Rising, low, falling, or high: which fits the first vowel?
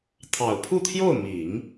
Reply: low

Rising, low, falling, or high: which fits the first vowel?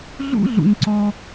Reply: high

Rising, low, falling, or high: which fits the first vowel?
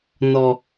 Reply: low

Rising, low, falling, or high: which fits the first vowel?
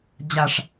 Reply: low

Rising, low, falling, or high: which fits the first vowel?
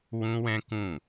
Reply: high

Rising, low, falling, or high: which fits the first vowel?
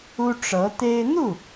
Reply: high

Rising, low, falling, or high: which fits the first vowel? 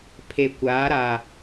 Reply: low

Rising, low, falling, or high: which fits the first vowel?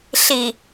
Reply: low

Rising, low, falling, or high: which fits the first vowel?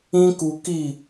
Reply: high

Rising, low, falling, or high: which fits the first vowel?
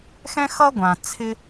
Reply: high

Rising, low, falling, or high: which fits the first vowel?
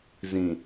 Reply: low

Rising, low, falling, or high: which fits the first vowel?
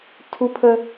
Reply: high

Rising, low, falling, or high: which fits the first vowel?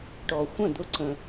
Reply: low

